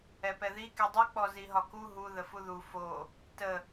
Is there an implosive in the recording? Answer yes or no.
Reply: no